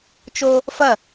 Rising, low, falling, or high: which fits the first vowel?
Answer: high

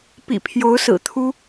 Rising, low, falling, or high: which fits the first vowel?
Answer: low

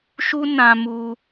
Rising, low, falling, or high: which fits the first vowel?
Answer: high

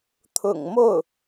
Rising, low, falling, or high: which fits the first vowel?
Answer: low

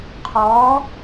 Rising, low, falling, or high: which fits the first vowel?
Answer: rising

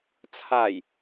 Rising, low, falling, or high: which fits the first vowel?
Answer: low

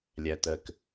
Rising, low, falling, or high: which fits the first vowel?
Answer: low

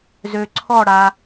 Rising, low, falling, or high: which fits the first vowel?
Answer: low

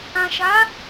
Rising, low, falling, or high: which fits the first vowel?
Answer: low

